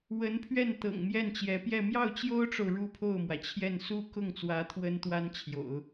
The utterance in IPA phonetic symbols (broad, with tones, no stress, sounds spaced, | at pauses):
w ə˧˥ n pʰ ɥ ɛ˥˩ n t̪ ɤ̰˨˩ ŋ m j ɛ˥˩ n t͡ɕ j ɛ˧˥ p j ɛ˥˧ m j ɑ˥˩ ʊ̯ t͡ɕ j o˥ ʊ̯ ʈ͡ʂ o˨ ʊ̯ ɻ u˥˧ pʰ o˥˩ ʊ̯ m w ä˩ t͡ɕʰ j ɛ˥˩ n s u˥ k ʊ˥˩ ŋ t͡s w ä˧˥ t̪ʰ w ə˥ n t̪ w a˥ n t͡ɕʰ j o̰˨˩˦ ʊ̯